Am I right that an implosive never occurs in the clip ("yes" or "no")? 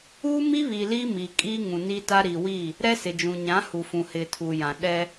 no